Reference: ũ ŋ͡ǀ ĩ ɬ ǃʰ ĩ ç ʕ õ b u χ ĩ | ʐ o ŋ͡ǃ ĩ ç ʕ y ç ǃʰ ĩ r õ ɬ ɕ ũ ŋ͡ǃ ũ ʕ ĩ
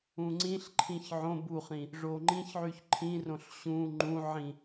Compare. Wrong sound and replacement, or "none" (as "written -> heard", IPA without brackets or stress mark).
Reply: none